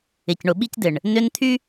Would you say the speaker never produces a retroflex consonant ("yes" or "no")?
no